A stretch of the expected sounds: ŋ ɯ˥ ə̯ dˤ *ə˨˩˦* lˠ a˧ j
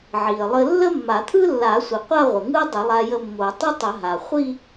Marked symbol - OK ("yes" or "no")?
yes